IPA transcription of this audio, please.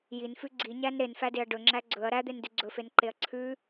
j i n f ʉ ɡ͡ǀ i ɲ æ n ɾ e n f æ d e ɐ̯ ɖ ɵ ŋ͡ǁ æ ɡ͡ǀ ɵ ɐ̯ ɾ æ d̪ e n d ʉ ɡ͡ǀ ɵ f e n ǃ e ɐ̯ ǀʰ ʉ

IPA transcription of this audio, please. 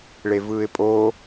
ɭ e v ɯː ɪ̯ pʼ o

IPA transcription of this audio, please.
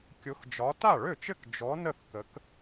kʲ ʊ˨˥ x d͡ʒ ɒ˨˥ t a˥˩ ɭ ø˥˩ t͡ʃ ɘ˥˩ k d͡ʒ ɔ˨˥ n ə˥˩ θ k ə˨˥ k

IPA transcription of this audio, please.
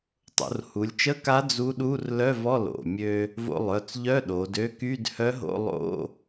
tˤ o̰˩˧ r h u˩˧ lʲ t͡ʃ ə˧˥˧ k a˧˥ d͡z u˧˥ ɗ u˧˥˧ r l œ˧˥˧ v ɔ˧˥˧ l o̰˩˧˩ mʲ ø˧ | v o̰˧ lˠ œ˩˧˩ t͡s ʎ œ˧˥˧ ɗ o˩˧ d ø˧˥ k y˧˥˧ d h œ˧˥ ɦ o̰˧˥˧ lˠ o̰˧˥˧

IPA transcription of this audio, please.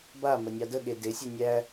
b a m ə nʲ ɑ d ə ɠ e d e sʲ ɛ nʲ æ

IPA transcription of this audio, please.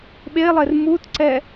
ɓ e lˠ e r m u t ǀ ɛ

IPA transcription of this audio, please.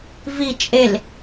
v i t͡ʃʼ e l

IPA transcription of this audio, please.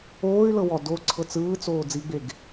oː y̯ l ɤ w ɔ d o ǀʰ ɤ t͡s ɯː t͡s oː d͡z i ɡ͡b e ɡ

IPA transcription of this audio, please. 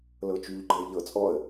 l ɤ t͡ʃ y ʎ ɡ͡ǃ ɤ ɪ̯ ʎ ɤ t͡sʼ ɔ ə̯

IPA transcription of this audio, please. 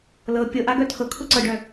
l ɤ pʲ ɤ ʔ a ɡ œ tʰ ɤ kʰ ʊ ǀ ɤ ɖ œ

